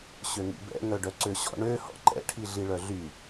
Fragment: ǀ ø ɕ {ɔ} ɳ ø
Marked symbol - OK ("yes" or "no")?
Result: no